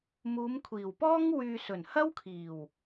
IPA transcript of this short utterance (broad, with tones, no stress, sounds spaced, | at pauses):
m uː˨˧ m kʷʰ iː˨˩ w p ɔː˥ ŋ w yː˨ s ɵ˨˩ n h ɐ˥ w kʰ iː˨˩ w